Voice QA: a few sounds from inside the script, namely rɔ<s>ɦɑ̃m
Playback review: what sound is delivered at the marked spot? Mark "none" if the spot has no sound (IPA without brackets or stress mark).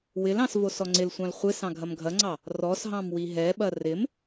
s